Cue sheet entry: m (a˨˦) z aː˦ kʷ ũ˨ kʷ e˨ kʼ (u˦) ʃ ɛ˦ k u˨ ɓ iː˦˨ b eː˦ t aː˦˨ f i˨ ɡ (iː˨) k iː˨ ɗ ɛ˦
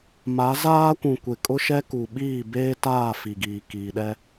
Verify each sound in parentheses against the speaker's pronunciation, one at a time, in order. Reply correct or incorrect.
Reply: correct, incorrect, correct

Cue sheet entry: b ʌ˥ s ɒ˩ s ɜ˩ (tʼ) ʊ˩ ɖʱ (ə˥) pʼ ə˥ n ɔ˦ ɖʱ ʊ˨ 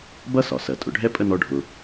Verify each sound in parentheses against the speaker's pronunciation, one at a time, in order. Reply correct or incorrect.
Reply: correct, incorrect

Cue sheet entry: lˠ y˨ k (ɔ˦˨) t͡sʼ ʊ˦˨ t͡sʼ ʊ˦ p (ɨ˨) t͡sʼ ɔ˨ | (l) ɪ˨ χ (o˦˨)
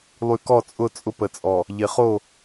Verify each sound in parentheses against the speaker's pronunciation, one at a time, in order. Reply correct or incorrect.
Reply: correct, incorrect, incorrect, correct

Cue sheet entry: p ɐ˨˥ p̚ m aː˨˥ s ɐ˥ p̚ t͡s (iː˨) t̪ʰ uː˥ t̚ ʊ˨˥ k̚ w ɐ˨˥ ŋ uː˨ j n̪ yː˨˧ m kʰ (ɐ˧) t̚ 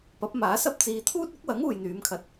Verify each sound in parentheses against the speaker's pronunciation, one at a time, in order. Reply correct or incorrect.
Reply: correct, correct

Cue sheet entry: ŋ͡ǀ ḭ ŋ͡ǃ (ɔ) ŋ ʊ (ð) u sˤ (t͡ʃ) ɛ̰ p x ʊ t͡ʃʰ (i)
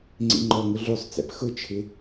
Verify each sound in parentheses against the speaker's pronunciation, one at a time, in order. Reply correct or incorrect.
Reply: correct, incorrect, incorrect, incorrect

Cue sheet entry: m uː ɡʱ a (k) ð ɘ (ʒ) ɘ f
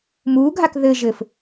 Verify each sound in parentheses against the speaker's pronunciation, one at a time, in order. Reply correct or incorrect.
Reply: correct, correct

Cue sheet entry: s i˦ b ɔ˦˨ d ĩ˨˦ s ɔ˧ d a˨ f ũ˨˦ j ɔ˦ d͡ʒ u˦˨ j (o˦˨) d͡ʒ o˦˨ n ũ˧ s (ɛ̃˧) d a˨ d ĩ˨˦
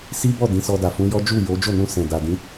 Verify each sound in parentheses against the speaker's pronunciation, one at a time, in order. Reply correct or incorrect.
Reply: incorrect, incorrect

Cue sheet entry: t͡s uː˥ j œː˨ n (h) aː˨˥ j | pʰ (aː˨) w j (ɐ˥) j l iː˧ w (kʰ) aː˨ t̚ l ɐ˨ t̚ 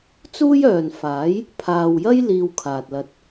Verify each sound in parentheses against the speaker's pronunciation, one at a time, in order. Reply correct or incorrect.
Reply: incorrect, correct, correct, correct

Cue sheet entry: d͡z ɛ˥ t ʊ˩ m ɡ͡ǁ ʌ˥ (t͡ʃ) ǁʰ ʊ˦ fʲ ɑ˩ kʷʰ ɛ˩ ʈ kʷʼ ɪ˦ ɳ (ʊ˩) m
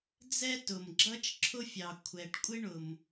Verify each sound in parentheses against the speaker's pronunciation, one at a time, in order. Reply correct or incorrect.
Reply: correct, correct

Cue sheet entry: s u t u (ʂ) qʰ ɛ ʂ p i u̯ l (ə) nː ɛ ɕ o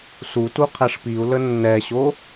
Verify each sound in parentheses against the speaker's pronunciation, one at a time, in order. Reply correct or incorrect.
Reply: incorrect, correct

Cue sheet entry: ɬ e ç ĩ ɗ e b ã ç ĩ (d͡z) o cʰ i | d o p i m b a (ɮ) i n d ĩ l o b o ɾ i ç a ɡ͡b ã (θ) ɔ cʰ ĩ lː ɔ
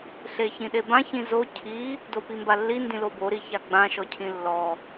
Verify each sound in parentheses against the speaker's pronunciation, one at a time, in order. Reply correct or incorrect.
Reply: incorrect, incorrect, incorrect

